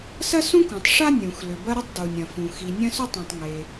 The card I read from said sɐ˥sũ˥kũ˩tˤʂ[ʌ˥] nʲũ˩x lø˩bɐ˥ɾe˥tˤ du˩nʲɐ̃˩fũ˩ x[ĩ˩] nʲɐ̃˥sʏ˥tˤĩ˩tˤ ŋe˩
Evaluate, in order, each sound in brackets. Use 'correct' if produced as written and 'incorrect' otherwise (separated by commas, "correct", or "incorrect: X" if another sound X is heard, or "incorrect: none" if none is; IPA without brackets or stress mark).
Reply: incorrect: a˥, incorrect: i˩